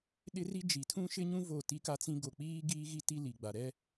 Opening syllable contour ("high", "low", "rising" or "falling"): high